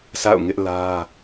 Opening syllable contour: falling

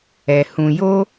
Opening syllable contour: high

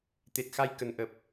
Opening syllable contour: low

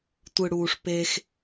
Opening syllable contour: low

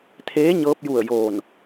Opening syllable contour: rising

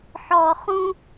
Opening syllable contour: low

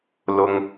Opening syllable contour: high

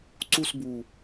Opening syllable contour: falling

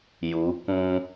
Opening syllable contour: rising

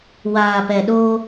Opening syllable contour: low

